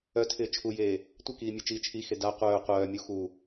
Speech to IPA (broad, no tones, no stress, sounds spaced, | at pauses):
œ tʰ ɪː t͡ʃʰ u j eː | tʷ ɪ k iː mʲ e t͡ʃ iː t͡ʃʰ i x e d a qʷ œː qʷ œː mʲ u x u